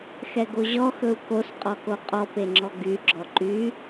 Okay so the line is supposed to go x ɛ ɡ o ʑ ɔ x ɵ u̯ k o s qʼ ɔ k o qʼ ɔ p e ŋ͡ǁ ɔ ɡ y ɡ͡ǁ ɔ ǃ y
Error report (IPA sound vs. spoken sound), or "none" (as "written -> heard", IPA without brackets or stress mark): none